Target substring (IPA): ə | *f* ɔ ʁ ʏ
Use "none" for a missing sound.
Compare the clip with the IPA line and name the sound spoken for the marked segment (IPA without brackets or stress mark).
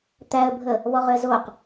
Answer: β